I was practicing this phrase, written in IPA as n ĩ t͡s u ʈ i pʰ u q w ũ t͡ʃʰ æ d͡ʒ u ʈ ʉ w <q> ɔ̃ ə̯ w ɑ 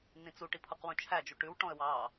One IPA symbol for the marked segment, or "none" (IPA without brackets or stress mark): ʈ